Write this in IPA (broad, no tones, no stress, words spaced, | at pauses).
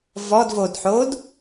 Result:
vɔdvodħod